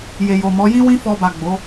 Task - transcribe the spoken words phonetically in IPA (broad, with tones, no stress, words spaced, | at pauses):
je˨jo˨mɔ˨˦ jĩ˦wĩ˦ fɔ˧ba˨ ɡ͡bo˨˦